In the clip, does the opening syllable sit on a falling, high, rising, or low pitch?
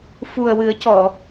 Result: low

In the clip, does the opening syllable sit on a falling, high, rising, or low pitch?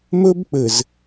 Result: high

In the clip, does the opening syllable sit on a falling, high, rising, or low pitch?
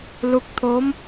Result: rising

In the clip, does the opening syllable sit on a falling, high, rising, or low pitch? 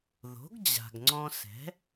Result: rising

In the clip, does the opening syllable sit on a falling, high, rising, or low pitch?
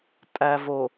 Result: low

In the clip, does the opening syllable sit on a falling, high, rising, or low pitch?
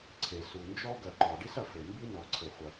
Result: low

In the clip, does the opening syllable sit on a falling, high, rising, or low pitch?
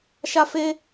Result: high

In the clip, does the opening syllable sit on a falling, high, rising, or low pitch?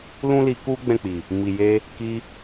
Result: high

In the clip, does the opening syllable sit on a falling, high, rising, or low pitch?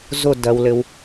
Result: falling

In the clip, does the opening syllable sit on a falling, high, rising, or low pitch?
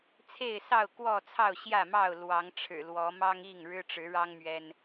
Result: falling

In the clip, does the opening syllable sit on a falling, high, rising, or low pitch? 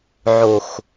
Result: low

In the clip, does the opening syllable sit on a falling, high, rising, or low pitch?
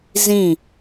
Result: falling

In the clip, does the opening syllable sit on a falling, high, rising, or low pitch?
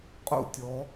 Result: falling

